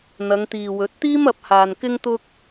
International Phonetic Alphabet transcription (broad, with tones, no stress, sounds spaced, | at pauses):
n̪ ɐ˨˧ ŋ t̪ iː˨ w ɵ˨˥ t̚ t̪ iː˥ m ɐ˨˥ p̚ h aː˨ n k ɪ˥ ŋ t̪ ʊ˥ k̚